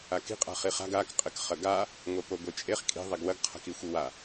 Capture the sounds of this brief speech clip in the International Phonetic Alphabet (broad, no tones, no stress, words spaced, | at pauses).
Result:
aki̤ qʼa̤χiχa̤ɡ ak qʼɘkχɐɡa | ŋʷɛpoɡʷet͡ʃʼeχ kʼi̤ ðˤɛɡwɐɡ qʰa̤kixʷiwa